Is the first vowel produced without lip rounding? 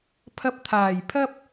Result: yes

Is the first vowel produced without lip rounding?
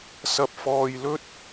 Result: yes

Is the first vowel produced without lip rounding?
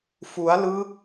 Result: no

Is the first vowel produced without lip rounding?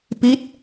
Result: yes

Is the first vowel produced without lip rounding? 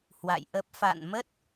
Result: yes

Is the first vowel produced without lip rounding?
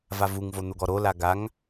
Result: yes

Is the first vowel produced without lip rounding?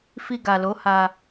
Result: yes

